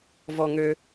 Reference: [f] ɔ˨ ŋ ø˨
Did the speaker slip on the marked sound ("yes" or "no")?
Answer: yes